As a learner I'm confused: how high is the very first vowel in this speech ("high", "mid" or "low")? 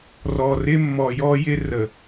mid